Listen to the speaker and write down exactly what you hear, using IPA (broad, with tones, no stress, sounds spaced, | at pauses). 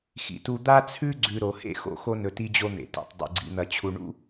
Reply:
x ḭ˨ t u˦ d̪ a˥ t͡sʰ ʉ˥ ɡ͡ǀ ʉ˨ ɾ o˩ h ḛ˥ x o̰˦ x o˥ n ɵ˨ t i˦ d͡ʑ o˦ n̪ ḛ˩ t ḭ˩ tˤ dˤ ḭ˩ ɡ͡ǀ ḭ˨ n̪ ɐ˨ t͡ɕʰ u˨ ɳ ṵ˥